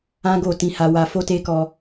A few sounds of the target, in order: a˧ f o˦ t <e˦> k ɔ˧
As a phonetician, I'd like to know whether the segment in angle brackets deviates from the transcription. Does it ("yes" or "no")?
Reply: no